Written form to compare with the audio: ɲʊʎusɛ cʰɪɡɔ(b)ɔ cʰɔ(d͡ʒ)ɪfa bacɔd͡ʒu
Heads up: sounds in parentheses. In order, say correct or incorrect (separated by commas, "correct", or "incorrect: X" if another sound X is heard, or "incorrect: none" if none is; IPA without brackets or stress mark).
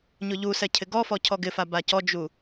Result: incorrect: f, incorrect: ɡ